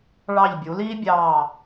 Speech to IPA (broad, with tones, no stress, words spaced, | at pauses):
ɭɑ˧˩ʎbʲu˩˧liː˥bʲɑː˧˩